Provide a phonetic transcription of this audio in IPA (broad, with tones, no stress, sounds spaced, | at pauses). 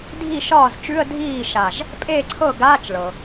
dʱ i˥˩ ʃ ɒː˥˩ z t͡ʃ ʉ˧˥˧ ə̯ dʱ iː˥˩ ʃ a˧˩ ʒ | pʼ eː˥˩ ǀʰ ɤ˥˩ ɡ aː˧˥˧ t͡ʃ ɭ ɤ˩